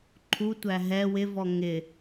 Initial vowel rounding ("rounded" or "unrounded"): rounded